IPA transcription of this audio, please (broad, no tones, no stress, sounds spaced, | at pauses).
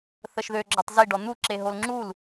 θ ə ʃ ð ø ɡ͡ǁ ɔ tˤ z i ɖ ɔ n̪ u ǁ e ɦ o l ŋ͡ǁ u l